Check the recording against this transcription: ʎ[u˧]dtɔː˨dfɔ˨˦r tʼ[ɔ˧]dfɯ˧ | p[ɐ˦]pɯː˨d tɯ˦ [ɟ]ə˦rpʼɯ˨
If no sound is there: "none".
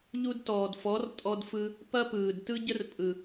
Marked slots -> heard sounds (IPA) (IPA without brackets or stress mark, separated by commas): u˧, ɔ˧, ɐ˦, ɟ